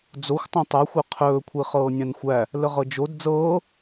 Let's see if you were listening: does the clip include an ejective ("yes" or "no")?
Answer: no